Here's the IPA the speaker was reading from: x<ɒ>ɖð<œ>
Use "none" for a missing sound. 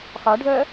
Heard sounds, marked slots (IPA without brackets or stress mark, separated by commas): ɒ, œ